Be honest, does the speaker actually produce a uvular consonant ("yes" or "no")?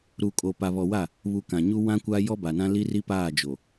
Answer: no